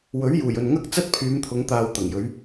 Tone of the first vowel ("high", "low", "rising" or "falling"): rising